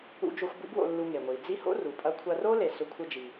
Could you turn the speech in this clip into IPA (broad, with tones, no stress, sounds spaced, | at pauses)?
ṵ˧ d͡ʒ o˧ xʷ b ṵ˥ b w o̰˧ lː u˧ ŋ e˩ ŋʷ i˩ d͡z i˥ h o̰˥ r u˩ pʼ ɐ˧ kʷʰ ɐ˧ r o˥ l e˩ s ɵ˧ kʷʰ ɨ˧ d͡ʒ i˩